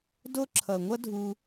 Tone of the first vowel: high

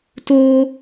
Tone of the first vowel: high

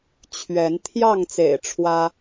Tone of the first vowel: rising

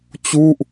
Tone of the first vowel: falling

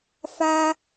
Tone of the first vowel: high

